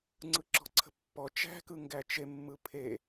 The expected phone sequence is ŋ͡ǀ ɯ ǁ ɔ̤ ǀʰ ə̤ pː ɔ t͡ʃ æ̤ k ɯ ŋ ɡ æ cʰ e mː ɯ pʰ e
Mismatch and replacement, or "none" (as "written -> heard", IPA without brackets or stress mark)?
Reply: cʰ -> t͡ʃ